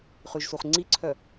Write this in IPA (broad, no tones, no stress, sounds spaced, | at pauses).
χ ʉ ʒ s u χ ŋ͡ǀ i ǀʰ œ